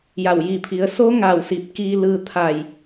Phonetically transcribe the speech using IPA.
j a˧˩ w j i˧˩ pʰ i˩˧ ə̯ s o˧˥ ŋ a˧˩ w s i˧˩ p̚ k iː˧ l ɯː˧ t̪ʰ a˧˩ j

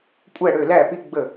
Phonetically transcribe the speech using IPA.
kʷʼ æ˥˩ ɽ ø˥˩ l æ˥˩ p i˦ ɡ͡b ə˥˩

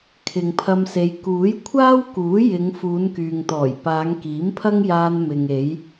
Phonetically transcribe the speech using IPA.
kʰ ɪ˨ ŋ pʰ ɐ˧ m s e˨˧ j k uː˨˥ j kʷʰ aː˥ w k uː˨˥ j ɪ˨˧ ŋ f uː˨˧ n k yː˨ ŋ t̪ ɔː˨˩ j p aː˨˧ ŋ k iː˨˥ m pʰ ɐ˥ ŋ j aː˧ n m ɪ˨ ŋ e˨˧ j

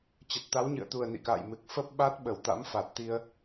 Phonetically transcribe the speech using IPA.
t͡ɕ ə˨˩ t̚ t̪ a˨˦ w ɲ ɨ̰˧˨ ə̯ t̪ u˨˩ ə̯ n ḭ˧˨ k a̰ː˧˨ j m ɨ˨˩ k̚ f ə˦˥ p̚ ɓ a˦˥ t̚ ɓ ə˧˩ w t̪ a̰˧˥ m f a˨˩ t̚ t̪ i˧ ə̯

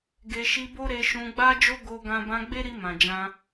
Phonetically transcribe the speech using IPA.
ɡ e˧ ʃ i˧ b o˦ ɾ e˧ ʃ ũ˧ ɡ͡b a˦ d͡ʒ o˦ ɡ o˦ ɡ ã˦ b ã˧ ɡ͡b e˦ ɾ i˧ m ã˨ d͡ʒ ã˧

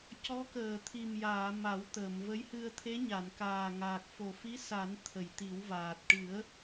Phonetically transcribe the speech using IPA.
c ɔ˧˥ k əː˨˩ t̪ʰ i˨˩ m j aː˨˩˨ m a˨˩˦ w t̪ əː˨˩˨ m v ə˧˥ j h ɨ˧ ə̯ t̪ʰ e˧˥ ɲ a˨˩˨ n k aː˨˩ ŋ aː˨˩ k̚ f o˨˩ f i˧˥ s a˨˩˦ n t̪ʰ ə˨˩˨ j t̪ i˨˩˦ w v aː˨˩ t̚ ʈ ɨ˨˩˦ ə̯

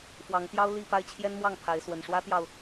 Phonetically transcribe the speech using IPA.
f w ɑ˨˦ ŋ t̪ j ɑ˦ ʊ̯ l i˥˨ p a˥˨ ɪ̯ t͡ɕʰ j ɛ˦ n m w ɑ˥˨ ŋ pʰ a˨˦ ɪ̯ s w ə˨˩ n ʂ w ä˦ t̪ j ɑ˨ ʊ̯

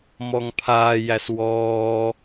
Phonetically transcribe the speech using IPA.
m ɔ ŋ pʰ aː j æ s w ɔː

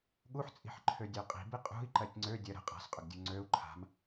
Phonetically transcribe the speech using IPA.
ɠ u ħ t͡sʼ i̤ ħ ǃʰ ø dʲ ø qʼ i̤ b i qʼ ṳ i̯ ǃ ɜ tʲ ŋ͡ǀ ø dʲ ɜ ɾ ə̤ qʼ a̤ s qʼ ʏ ɡ dʲ u ŋ͡ǀ ø u̯ ǃʰ a̤ m

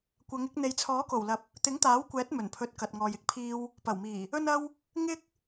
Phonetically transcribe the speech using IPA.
kʷ ɐ˨˧ ŋ ɪ˧ k̚ n̪ e˨ j t͡sʰ ɔː˨˥ k o˨˩ w l ɐ˨ p̚ | t̪ ɪ˨˥ ŋ t̪ aː˨˥ w kʷ ɛː˨˥ t̚ m ɵ˨˩ n pʰ ɵ˨˥ t̚ k ɐ˨ t̚ ŋ ɔː˨ j ɪ˥ k̚ pʰ iː˧ w | p ɐ˨˩ w m iː˨˩ | ɵ˧ n ɐ˧ w | ŋ ɪ˥ k̚

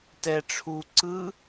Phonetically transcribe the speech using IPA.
t ɛ ʈ͡ʂʰ u ǀ ɯ

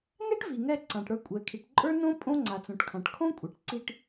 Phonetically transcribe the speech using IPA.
n ɛ˥ ʈ v i˩ ŋ ɛ˧ ǀ ã˩ ʈ ɽ ə˞˧ kʷʼ ɛ˩ kʰ i˩ ʈ ǃʼ ə˞˥ n õ˥ pʼ õ˥ ŋ͡ǀ a˩ t͡s õ˩ ʈ kʰ ã˩ ʈ kʰ õ˥ kʷʼ ɛ˩ ʈ ǀ i˧ ʈ

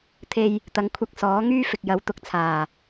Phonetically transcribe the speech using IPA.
t̪ʰ e˧ j | t̪ ɐ˨ ŋ kʷʰ ɐ˧ k̚ s ɔː˨˥ ŋ yː˥ f ɪ˨ k̚ j ɐ˨˧ w t̪ ʊ˧ k̚ t͡sʰ aː˨˩

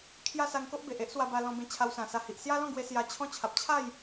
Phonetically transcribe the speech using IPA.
kʰ j a˦ s a˧ ŋ k o˦ ʔ b e˨ ʔ e˦ ʔ s w a˧ b a˧ l ɔ̃˧ b ẽ˧ t͡ɕʰ a˧ w s ã˨˩ s a˧ h i˨ ʔ s j a˦ l ɔ̃˥˧ ɡ w e˧ s j a˧ t͡ɕʰ ɔ̃˦ t͡ɕʰ a˨ p̚ t͡ɕʰ a˥˧ j

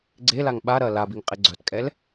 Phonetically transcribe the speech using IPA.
ɡ͡ǀ e l a ŋ ɓ a ɾ ɐː l a b i ŋ qʼ e ɡ͡ǀ œ t kʼ ɛ l

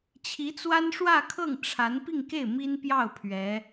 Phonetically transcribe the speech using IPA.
t͡ɕʰ i˧˥ t͡s w a˥ n ʂ w ä˥˧ kʰ ɤ˥˩ ŋ ʈ͡ʂʰ a˧˥ n p i˥˧ ŋ k e˥˩ ɪ̯ m i˥ n p j ɑ˥˩ ʊ̯ pʰ ɥ ɛ˧˥

